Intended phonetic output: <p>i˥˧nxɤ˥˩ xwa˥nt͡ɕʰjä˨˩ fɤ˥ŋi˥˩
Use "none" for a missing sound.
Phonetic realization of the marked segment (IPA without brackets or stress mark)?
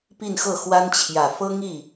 p